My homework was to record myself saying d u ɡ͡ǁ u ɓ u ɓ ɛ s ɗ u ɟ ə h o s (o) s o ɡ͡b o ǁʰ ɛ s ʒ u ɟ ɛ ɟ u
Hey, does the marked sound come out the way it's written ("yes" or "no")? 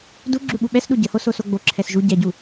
yes